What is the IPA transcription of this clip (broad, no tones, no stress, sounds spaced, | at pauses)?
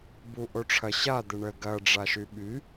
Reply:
b u ʔ o ʈ͡ʂʰ ɐ ɕ a d̪ ɘ ɳ ə ɡ ɐ ɖ͡ʐ a ʃ y ɓ y